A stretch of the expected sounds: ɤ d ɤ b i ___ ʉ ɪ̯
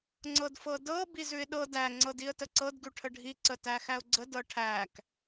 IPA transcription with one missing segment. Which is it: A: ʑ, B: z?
B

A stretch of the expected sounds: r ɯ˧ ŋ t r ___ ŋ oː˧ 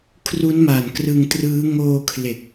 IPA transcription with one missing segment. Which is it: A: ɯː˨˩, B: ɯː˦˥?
B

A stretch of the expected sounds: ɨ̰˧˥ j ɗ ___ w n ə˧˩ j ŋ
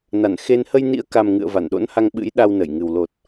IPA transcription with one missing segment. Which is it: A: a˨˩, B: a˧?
B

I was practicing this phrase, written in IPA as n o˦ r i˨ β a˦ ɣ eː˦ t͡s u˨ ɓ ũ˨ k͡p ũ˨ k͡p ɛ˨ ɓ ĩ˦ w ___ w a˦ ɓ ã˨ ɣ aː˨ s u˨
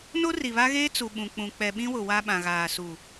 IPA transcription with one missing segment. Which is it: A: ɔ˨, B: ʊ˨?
B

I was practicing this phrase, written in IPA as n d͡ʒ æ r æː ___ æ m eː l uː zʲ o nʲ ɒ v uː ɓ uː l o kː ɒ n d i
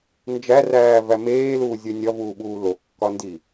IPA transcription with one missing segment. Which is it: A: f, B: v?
B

